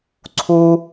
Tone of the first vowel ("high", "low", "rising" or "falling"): high